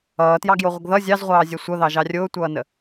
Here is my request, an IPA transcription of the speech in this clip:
ʌː t j ɑ ɡ j o ʁʷ ə ɡ ð ʌ zʲ ɑ z ʁʷ ɑː zʲ ɛ sʷ ʌ ð ɑ ʒ ɑ rʲ ʊː tʷ ʌː n ə

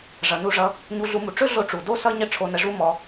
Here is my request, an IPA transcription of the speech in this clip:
ʐ ʌ˨ n u˧ ʐ ʌ˧ | ɲ u˧ ɮ u˧ m u˨ ʈ͡ʂ ɵ˦ ɮ o˧ ʈ͡ʂ u˨ d o˦ s ʌ˦ ɲ ə˦ ʈ͡ʂʰ o˧ n ə˧ ʐ u˦ m ɔ˧

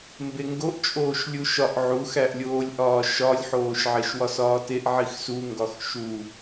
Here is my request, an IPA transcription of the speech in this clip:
m b e ŋ ɡ o ʔ t͡ʃʼ oː ʃ lʲ u ʃ ɒ ʔ ʕ u x æ ʔ lʲ oː lʲ ʔ ɒː ʃ ɒ lʲ ħ oː ʃ ʕ e ʃ w ɒ s ɒː t e ʔ ʕ i x s u ŋ ɡ ɒ x ʃ u

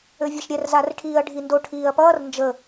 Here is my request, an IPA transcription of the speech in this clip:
ø vʲ ɛ ʃ ɾʲ ɛ r z a r ʈʰ iː ɐ̯ ɖʱ i n d o ʈʰ iː ɐ̯ p ʌː r n d͡ʒ ə

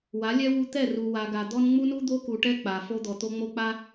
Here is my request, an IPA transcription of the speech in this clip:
w a˨˦ lʲ ɛ˦ w u˦ t̪ ɛ˦˨ r u˨ w a˨ ɡ a˨ d̪ ɔ˦ n ŋ͡m u˦ n u˦ d̪ o˦ k u˨ ʈ ɛ˦ k͡p a˨ f o˦ d̪ ɔ˨ t̪ o˦ ŋ͡m o˦ k͡p a˦

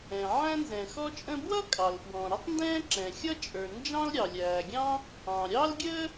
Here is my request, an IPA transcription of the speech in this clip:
ɛ̃˩ ʕ æ̃˥ n z ɛ̃˩ x ɔ˥ t͡ʃʼ ə̃˥ b w ʌ˥ kʼ ɑ˩ l f w ɔ̃˩ ɾ ɪ˥ tˤ n d ɛ̃ː˥ ǁ ɛ̃˩ xʲ ʌ˥ t͡ʃʼ ə˞˩ n d͡ʒ ɑ̃˥ l ɾʲ ɑ˩ lʲ æː˩ ɡʲ ɑ̃˥ | ɑ̃˩ ɾʲ ɑ˥ l ɡʲ əː˥

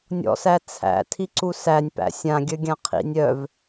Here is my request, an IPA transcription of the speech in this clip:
nʲ ɔ̰ s æ t͡sʰ æ̰ tʰ i ǀ u s æ nʲ p æ̰ sʲ ã ɡʲ œ ɡʲ ã qʰ ḭ nʲ œ v

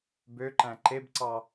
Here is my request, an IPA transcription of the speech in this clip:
b ø ǃ æ̃ ǃ e b ǀ ɑ

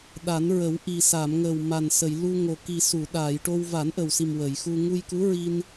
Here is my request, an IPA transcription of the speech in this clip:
ɗ a˨˩˦ n ɹ ə˨˩˦ w ʔ i˨˩ s a˨˩˨ m ŋ ə˨˩ w m a˨˩ n s ə˨˩˨ j l u˧ ŋ o˨˩ k i˨˩ s u˨˩˨ ɗ aː˨˩˨ j ʈ o˧ w v a˨˩˦ n ʔ ə˨˩ w s i˨˩ m w ə˨˩˨ j x u˧ ŋ u˧ j k u˧˥ ɹ i˧ n

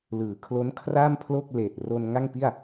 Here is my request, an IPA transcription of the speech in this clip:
l ɯː˩˦ kʰ l o˦˥ n kʰ r a˥˩ m pʰ l o˥˩ k̚ l eː˨˩ t̚ r o˧ n ŋ a˥˩ ŋ p i˥˩ a̯

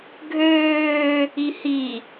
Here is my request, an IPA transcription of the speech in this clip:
ɡʱ øː | i h i

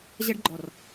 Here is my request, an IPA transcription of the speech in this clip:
ʑ ɐ˧ ɖ ɡ͡ǃ ɔ˨ r

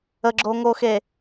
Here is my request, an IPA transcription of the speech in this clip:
ə ɡ͡ǁ o ŋ oː x e

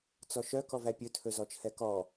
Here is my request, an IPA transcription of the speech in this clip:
t͡s ɔ ʃ œ k ɔ v æ pʲ ɵ tʰ ɵ z ɔ t͡ʃʰ ɛ k ɔ

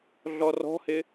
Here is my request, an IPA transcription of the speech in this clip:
ɮ ɔ r ɔ̤ h ɪ

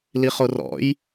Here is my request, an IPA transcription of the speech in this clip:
l i χ o r ɔ̰ j

